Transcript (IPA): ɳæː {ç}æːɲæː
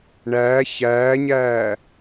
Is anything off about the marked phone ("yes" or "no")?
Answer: no